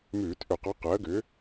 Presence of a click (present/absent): absent